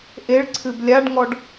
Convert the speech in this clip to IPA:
ʔ e ɭ ǀʰ ɨ b lʲ a ɖ ŋ ɔ ɖ

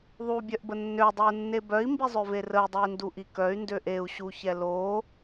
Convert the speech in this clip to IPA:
ðˤ u bʲ œ ʔ b ə nː ø dˤ ɛ u̯ nː e b œ i̯ m b i zˤ ø v e r ə y̯ dˤ ø i̯ n d u ʔ i k œ y̯ n d ø ʔ e u̯ ɕ u ç ɛ l o

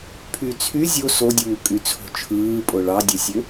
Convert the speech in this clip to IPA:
pʰ y t͡sʰ y zʲ o s o dʲ uː kʼ y t͡sʰ o̤ t͡ʃʰ ɯː pʼ o ɭ ɑ dʲ e sʲ ø

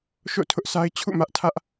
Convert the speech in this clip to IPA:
ʃ o̰˦˨ tʰ ʊ˦ ʔ s a˦ ɪ̯ t͡ɕʰ ṵ˦˨ m ä˦ ʔ tʰ ä˦ ʔ

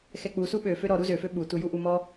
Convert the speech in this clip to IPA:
x ɛ k͡p u s u ɓ ø f ø ɾ ɔ ɾ u z ø f ø ɓ u t u j u ʔ u m ɔ

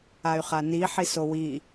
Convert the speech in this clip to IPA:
a y̯ χ a n i ħ i s o w i

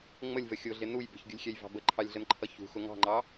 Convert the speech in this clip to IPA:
ŋ͡m ə lʲ v ə xʲ ʊ ɮ ɪ n u j b ə̤ ç ɡʲ ʊ lʲ xʲ ɛ j v ɑ̤ b ə ǃʰ ɑ lʲ ɮ ə n ǃʰ ʌ ç ṳ x ʊ ŋ ɑ̤ ŋ͡ǃ ɑ

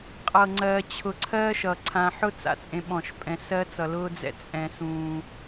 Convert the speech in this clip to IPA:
qʼ ɤ˨ ŋ͡ǀ ɜː˨ t͡ɕʰ ʊ˨ ǀʰ ɜː˦ ʃ ʌ˨ ǀʰ ã˨ ħ ʊ˦ t͡s a̰˦ t͡sʼ ẽ˦ ɓ ɔ̃˦˨ ʃ pʼ ɛ̃˦ s ɜ˦ t͡s ʌ˨ l ʊː˦ d͡z ɛ̰˦ t͡sʼ ɛ̃˦ s ũː˦

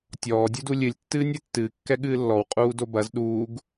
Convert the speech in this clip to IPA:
tʲ ɔː dʲ u d u lʲ ɨ lʲ tː ɨː nʲ ɛ tː ɨː kː ɛ ɠ ɨː lː ɔ w qʼ uː d o b ɐ z ɗ uː ɡ

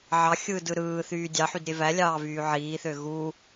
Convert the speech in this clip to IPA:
ʕ ɑ xʲ ɯː d ɯ ɾ ɯː θ yː dʲ ɑ ħ y d ɾʲ e v æ lʲ ɑː v yː ʕ iː θ ø ɣ u

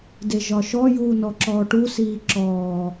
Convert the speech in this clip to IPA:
d e ʒ ɒ ʃ ɔ j uː n ɔ ǁ ɔː ʈ u s iː ǁ ɔː

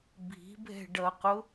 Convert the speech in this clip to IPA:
bʱ i̤ bʱ ɛ̤ ɖ ʌ q ʊ

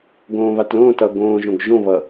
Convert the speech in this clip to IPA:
ɡ õː β a t l õː t ʌː ɡ õː ʒ õ ɡ ʒ õ β ʌ

